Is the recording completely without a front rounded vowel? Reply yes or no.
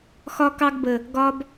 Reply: yes